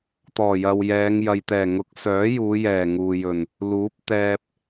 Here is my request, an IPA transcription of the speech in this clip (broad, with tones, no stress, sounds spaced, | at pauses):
t̪ ɔː˨˩ j ɐ˨ w j ɛː˨˧ ŋ j ɐ˨ j t̪ ɛː˨˩ ŋ ʊ˨˥ k̚ s œː˨˥ j uː˨˧ j ɛː˨˩ ŋ uː˨ j ɵ˨˩ n | l uː˨˥ p̚ t̪ ɛː˧ p̚